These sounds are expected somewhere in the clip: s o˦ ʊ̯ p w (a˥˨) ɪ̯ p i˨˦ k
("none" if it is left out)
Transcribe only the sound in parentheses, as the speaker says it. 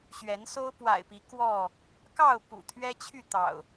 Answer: a̰˨˩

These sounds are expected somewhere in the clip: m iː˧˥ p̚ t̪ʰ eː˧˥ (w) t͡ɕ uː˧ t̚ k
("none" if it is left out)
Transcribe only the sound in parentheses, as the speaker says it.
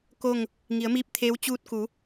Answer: w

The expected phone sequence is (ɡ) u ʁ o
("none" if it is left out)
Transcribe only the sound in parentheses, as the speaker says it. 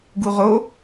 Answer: ɡ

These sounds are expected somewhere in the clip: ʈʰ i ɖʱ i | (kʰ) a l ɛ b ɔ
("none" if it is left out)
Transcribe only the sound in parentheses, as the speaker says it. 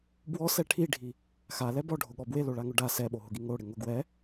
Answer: x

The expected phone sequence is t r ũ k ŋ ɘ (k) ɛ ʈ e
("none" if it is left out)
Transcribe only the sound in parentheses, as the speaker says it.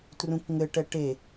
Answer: ʈ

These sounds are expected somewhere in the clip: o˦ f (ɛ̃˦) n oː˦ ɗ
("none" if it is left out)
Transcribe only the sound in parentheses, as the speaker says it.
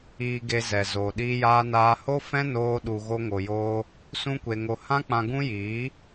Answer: ɛ̃˦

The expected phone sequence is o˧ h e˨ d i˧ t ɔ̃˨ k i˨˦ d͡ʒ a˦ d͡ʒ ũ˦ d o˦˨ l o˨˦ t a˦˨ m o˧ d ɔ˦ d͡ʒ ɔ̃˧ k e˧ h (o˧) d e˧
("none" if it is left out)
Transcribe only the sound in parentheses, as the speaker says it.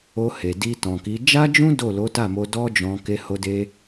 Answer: o˧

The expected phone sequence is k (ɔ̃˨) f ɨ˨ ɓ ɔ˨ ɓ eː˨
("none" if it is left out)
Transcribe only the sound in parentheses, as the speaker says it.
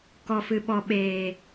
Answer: ɔ˨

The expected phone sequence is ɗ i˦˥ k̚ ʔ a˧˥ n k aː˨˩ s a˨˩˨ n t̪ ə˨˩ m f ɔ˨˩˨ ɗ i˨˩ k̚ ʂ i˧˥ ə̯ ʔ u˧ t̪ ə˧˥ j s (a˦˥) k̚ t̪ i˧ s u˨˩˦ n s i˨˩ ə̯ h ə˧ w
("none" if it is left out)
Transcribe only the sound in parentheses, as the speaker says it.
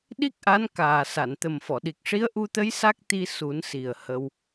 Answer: a˦˥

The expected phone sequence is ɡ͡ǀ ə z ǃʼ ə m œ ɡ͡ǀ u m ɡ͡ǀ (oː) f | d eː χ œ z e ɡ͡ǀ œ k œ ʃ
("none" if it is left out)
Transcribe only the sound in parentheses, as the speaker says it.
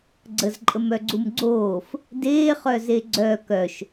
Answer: oː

